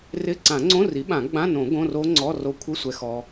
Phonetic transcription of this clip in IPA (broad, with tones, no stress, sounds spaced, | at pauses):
r ɪ˧˥˧ ǀ ã˨˩˦ ŋ͡ǀ õ˧˥˧ r i˩˥ ɓ ã˨˩˦ ɡ͡b ã˧˥˧ n õ˨˩˦ ɡ õ˧˥˧ r o˦˥ ŋ͡ǀ ɔ˧˥˧ r o˧ kʷʰ ɪ˧˥˧ sʷ ɛ˧ x ɔ˧